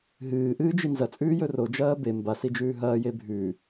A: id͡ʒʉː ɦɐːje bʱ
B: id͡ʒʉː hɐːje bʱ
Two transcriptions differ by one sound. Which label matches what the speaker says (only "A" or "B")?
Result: A